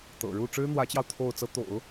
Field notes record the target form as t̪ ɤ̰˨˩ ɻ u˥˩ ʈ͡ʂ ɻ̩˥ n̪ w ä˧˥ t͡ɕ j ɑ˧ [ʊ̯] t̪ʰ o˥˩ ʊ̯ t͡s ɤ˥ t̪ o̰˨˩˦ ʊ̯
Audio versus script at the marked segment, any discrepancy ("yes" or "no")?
no